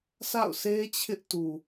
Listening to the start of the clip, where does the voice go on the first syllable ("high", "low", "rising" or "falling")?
falling